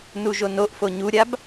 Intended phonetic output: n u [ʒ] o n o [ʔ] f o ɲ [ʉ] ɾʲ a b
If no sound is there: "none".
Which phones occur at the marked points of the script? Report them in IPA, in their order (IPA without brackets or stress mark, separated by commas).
ʒ, ʔ, u